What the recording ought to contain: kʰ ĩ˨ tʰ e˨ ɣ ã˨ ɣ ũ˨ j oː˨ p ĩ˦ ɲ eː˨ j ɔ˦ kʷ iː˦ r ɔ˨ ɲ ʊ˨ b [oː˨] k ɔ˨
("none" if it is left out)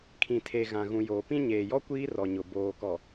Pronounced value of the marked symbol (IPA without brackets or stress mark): oː˨